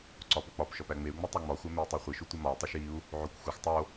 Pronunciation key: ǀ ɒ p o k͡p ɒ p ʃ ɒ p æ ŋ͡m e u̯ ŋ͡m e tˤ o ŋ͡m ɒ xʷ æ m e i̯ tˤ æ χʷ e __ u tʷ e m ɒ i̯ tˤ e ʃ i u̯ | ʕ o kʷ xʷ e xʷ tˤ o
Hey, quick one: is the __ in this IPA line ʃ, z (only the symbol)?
ʃ